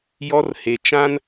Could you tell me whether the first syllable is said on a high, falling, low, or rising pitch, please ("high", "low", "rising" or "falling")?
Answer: high